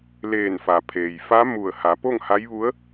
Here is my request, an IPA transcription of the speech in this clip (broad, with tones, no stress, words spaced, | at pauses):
leː˧˩nfa˩ pʰeː˩jfa˧˥ mu˧˩ə̯ha˩˧po˥˨ŋ ha˧˥jʋu˧˥ə̯